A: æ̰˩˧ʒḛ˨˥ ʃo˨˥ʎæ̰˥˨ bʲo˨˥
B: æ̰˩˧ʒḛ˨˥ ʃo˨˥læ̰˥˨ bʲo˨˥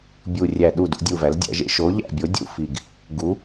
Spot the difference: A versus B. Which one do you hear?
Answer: A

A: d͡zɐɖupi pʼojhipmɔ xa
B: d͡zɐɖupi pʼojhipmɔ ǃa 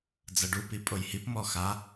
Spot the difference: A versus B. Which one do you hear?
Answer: A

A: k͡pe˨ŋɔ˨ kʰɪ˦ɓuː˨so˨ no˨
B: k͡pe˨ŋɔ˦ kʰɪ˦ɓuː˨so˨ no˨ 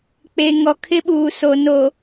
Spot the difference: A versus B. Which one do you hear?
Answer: A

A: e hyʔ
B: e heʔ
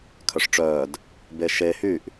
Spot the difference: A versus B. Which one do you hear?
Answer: A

